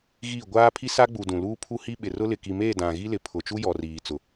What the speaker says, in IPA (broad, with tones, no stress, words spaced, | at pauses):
ɣi˦˨ ɡʷaː˦pʰi˦sa˦ɡ͡bu˨ dũ˨luː˦pʰu˦hi˦ ɓɪ˨rʊ˦ lɪ˨ki˨me˦˨ dã˨ɣi˦lɪ˨pʰʊ˨ t͡ʃu˦jɔ˨riː˨ t͡sʊ˨